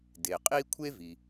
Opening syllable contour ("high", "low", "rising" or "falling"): low